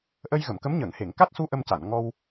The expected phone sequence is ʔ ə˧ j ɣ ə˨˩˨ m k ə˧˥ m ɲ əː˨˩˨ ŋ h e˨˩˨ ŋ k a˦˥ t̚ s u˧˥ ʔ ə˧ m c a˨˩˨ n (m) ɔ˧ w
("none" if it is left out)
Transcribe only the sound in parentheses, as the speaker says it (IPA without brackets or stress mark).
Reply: ŋ